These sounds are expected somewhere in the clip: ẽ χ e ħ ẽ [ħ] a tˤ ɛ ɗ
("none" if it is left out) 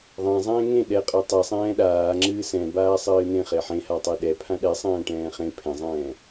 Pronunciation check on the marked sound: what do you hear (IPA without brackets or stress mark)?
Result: h